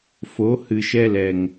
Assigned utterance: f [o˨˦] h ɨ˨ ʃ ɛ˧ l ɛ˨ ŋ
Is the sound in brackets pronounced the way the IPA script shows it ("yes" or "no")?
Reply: yes